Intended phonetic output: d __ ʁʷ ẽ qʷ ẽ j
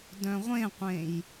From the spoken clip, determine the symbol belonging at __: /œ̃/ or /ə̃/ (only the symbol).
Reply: œ̃